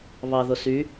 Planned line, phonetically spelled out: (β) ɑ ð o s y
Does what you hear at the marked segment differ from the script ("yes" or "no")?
no